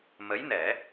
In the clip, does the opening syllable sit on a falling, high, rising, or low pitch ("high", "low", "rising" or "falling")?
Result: rising